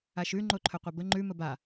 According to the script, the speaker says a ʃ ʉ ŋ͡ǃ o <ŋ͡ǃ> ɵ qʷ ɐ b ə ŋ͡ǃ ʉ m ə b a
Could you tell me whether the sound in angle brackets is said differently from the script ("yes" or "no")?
yes